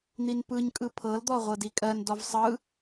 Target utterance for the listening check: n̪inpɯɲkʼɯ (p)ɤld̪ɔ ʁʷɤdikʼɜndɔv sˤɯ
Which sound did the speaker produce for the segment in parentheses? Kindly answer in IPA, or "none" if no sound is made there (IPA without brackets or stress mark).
pʰ